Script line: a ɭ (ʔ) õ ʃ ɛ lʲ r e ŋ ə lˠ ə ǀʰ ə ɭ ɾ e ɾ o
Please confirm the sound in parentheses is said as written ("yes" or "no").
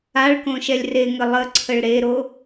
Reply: no